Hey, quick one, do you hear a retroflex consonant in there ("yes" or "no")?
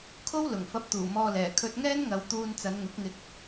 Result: no